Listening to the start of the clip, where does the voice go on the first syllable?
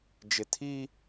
low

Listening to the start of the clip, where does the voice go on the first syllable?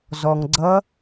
low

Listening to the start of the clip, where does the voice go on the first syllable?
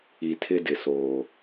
low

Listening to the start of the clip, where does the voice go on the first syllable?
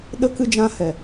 high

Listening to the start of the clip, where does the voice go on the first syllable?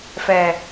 low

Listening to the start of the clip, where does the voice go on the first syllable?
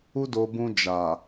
high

